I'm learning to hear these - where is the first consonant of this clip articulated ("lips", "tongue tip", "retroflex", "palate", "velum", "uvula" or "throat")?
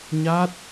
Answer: palate